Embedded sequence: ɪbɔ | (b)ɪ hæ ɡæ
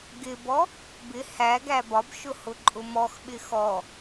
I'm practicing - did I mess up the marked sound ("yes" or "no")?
no